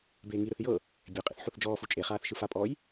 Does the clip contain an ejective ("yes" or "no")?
yes